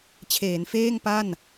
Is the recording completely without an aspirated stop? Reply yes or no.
no